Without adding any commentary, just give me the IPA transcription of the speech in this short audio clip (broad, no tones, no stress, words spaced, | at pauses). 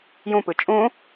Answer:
jũpɯ t͡ʃʼũ